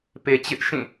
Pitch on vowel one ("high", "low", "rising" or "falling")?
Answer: low